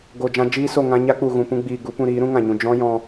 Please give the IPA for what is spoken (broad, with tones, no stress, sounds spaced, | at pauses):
ɡ o˨ d͡ʒ ã˧ d͡ʒ iː˦ s o˦˨ ŋ ã˧ ɲ a˦ k͡p u˨ ɣ ũ˨ p ũ˧ ɡ͡b iː˨ ɡ u˨˦ p ũ˧ ɾ iː˨˦ ɾ ũ˦ ŋ ã˨ ɲ ũ˨ d͡ʒ ɔ̃˦ j ɔ̃˧